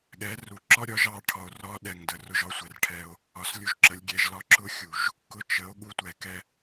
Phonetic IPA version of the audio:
ɠ ɛ˨˦ r u˨ ǁ ɒ˦ ɾʲ ɒ˨˦ ʒ ɑ˨˦ ʈʰ ɒ˨ o̯ r ɒ˦ ɗ ɛ˨ ŋ d ə˨ r ʊ˧ ʒ ɒ˦ sʷ ɛ˨ r ʈʰ ɛ˧ o̯ | ɒ˨ s lʲ u˧ ʒ ǁ ə˨˦ lʲ ɡʲ ɛ˧ ʒ l ɒ˦ ǁ ʊ˦ xʲ u˨ ʒ | k ʊ˧ t͡ʃ ə˨˦ o̯ ɠ u˦ tʷ ɛ˨ k ɛ˦

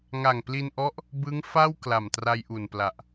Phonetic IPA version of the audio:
ŋ a˨˩ ŋ p l i˧ n ʔ ɔ˦˥ ʔ | b ɯ˦˥ ŋ f a˥˩ w k l a˨˩ m t r a˧ j ʔ u˨˩ n p l a˨˩ ʔ

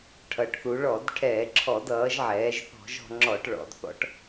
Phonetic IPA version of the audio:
ʈʰ ʌ˩˧ ʈ θ u˩˧ ɭ ɔ˧˩˧ d ʈʰ ɛː˧˩˧ ǁʰ ɔ˧˩˧ d ʌː˩˧ ʒ ʕ ɛː˩˧ ʒ θ ɔ̤˧˩˧ ʒ ɔ̤˩˧ ŋ͡ǁ ɔ˧˩˧ ʈ ɭ ɔ̰˩˧ d θ ɔ̰˨˥ ʈ

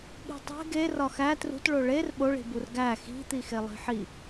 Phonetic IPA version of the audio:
ɠ i̤ tˤ e̤ ɡ e r ɒ x æ t r ṳ t ɭ o ɭ e r ɓ o ɭ i̤ b u r ɡ æ x i̤ t̪ i x e lˠ i̤ ħ i

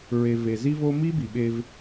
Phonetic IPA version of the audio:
ɹ e˨ v e˨ z i˦ v o˦ m i˦ b i˨ ɓ e˦ v

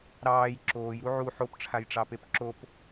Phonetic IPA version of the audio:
ɾ ɑː j ǁ oː j ɾ u ʕ u ħ o p ʈ͡ʂʰ a j ʈ͡ʂ ɑ p e p ǁ o p

